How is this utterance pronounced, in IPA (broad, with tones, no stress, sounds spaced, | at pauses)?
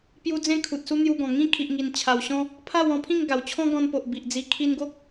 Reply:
p j u˧ d͡z ẽ˦ kʰ u˨ t̚ s u˦ n̪ j u˧ ɡ ɔ̃˨˩ ŋ ĩ˦ kʰ i˨ ʔ ŋ i˨˩ n t͡ɕʰ a˨˩ w ɕ ɔ̃˦ | pʰ a˥˧ w ɔ̃˥˧ pʰ ĩ˥˧ ŋ ɡ a˨˩ w t͡ɕʰ ɔ̃˦ ɡ ɔ̃˧ n p o˨ ʔ b i˨ ʔ d͡z i˧ kʰ i˧ n ɡ o˦ k̚